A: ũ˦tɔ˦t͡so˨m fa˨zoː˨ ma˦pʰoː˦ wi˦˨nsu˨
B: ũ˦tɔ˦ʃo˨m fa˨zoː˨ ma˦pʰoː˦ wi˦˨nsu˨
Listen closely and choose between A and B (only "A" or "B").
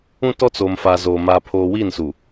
A